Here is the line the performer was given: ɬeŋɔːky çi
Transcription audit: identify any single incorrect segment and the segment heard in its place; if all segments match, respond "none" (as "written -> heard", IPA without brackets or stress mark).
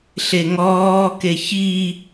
y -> e